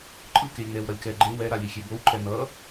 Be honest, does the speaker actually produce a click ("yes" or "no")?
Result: yes